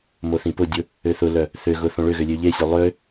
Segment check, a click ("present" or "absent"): absent